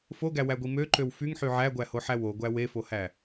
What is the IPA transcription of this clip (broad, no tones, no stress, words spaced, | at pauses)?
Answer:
foɡæwæɡʷi møǃøw fyŋħy ʕæɡʷæhoħæ woɡʷæ wefohæ